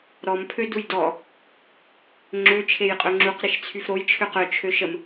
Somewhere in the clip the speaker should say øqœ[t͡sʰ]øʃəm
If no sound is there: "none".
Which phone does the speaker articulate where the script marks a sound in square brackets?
t͡ʃʰ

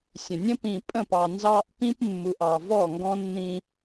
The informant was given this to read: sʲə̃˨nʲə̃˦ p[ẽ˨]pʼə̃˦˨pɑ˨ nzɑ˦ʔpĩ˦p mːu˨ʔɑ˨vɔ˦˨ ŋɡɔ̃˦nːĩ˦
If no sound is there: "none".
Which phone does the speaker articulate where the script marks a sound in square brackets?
ĩ˨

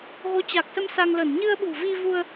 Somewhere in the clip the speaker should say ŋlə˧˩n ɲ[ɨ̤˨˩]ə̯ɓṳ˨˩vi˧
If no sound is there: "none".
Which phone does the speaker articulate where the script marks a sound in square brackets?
ɨ˧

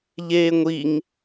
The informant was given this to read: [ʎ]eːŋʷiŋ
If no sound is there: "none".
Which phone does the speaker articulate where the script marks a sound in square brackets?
ʎ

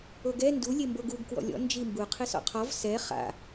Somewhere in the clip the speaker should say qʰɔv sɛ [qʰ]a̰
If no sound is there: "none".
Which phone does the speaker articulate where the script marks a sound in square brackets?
χ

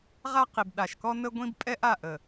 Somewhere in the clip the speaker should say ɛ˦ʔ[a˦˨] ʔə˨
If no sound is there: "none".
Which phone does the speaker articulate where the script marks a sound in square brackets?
a˦˨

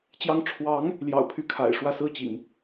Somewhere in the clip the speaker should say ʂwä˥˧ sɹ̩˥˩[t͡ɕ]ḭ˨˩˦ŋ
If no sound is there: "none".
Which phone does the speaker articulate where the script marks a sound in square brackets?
t͡ɕ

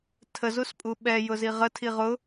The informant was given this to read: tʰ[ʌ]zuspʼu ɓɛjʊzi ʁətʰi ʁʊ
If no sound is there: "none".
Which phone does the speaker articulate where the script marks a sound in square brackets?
ə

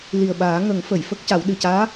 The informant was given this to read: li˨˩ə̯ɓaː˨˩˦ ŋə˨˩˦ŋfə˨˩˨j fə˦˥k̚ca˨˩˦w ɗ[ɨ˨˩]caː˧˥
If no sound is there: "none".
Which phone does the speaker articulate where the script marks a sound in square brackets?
ɨ˨˩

